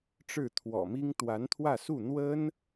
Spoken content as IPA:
ʈ͡ʂ ɻ̩˥˩ t̪ʰ w ɔ̰˨˩ m i˥ ŋ t̪ w a˧˥ n t̪ʰ w ä˥˧ s u˥˩ n̪ w ə˥ n

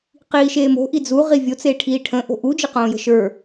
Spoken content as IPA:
q iː ʃ eː m o̤ ʔ i d͡z u ʁ i vʲ o t͡s eː ʈʰ iː ʈʰ ə̃ ʔ o̤ ʔ u d͡ʒ ɘ q õː j ə̤ ʃ ə˞

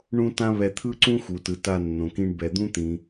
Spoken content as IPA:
ɳ ũ˥ t ã˥ β ɛ˧ t̪ʰ ɯ˥ ǀ ũ˥ x u˩ t ɯ˩ t a˧ nː õ˩ k ĩ˧ ɳ b ɛ˩ d̪ ũ˥ t̪ ĩ˩

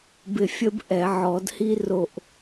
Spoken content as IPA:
b ɪ˦˨ fʲ ə˥ b ʔ ɛ˨˩˦ ʕ ɔ˨˩˦ d h i˥ r o˦˨ ʔ

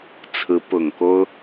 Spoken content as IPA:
t͡sʰ ɹ̩˧˥ p ʊ˨˩ ŋ k o˥ ʊ̯

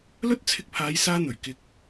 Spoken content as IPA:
l ɵ˥ t̚ t͡sʰ ɪ˧ k̚ pʰ aː˨˧ j s aː˥ n̪ ɵ˨˩ ɥ k ɪ˧ k̚

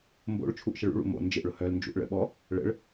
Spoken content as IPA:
m b o̰ ɭ t͡ʃʰ u ʔ ʃ ə ɭ ṵ ɭ ṵ m o̰ n d͡ʒ ɪ ʔ ɭ ʊ h œ l n d͡ʒ ṵ ʔ ɭ ə̰ ɓ ɔ | ɭ ə̰ ɭ

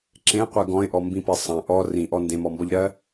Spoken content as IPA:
ǁ ẽ qʷ ɜ ɡ ɔ̃ ɪ̯ ʔ ɔ m b ĩ p e sˤ ɐ̃ ʔ ɔ r ĩ ʔ ɔ n d ẽ m ɔ m b ɔ ʎ ɾ ɜ

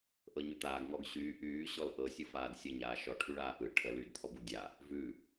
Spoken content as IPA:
ʔ ɤ ɲ ʉ t̪ aː ɡ ŋ ɔ ɡ ɕ yː ʔ yː ɕ ɔ l ʔ ɤ sʲ ɯ f aː d sʲ ə ɲ aː ʃ ɔ ʈʰ y ɭ aː ʔ ɯ ʈʰ ə l yː d t̪ʰ ɔ b u dʲ a | v ʉ

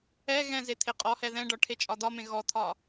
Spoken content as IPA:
ɛ ɣ ɛ̃ z e t̪ʰ e qʼ ɔ h ɛ ð ɛ̃ ɖ ɒ ʈʰ e t͡ʃʼ ɒ d̪ ɒ m ẽ ɣ ɔ t̪ʰ ɒ

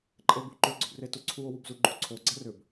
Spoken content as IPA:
ǃʼ e b u ǃ ʏ ɡ͡ǀ ʏ b r e t u ǀʰ u o̯ w u b z u ɡ͡ǃ u ǀʰ o ɡ͡ǀ ɐ r ʏ b

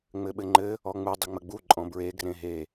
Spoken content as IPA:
ŋ͡m ɘ ɓ ɘ ŋ͡ǃ ɘ | ɔ ŋ͡m u dˤ ɘ ŋ͡m ə ɡ͡b u ǃʼ ɔ̃ b ɹ e ɡ r ẽ ɦ e

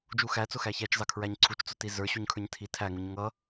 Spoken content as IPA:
d͡ʒ u x æ t͡s ʊ x æ ç æ t͡ʃ z ɑ kʰ ɹ æ ɲ ǀʰ u t͡ʃ t͡s ʊ t i z ə˞ ɕ u ɲ kʰ ə˞ ɲ tʰ i tʰ æ ŋ u ɲ ŋ ʌ

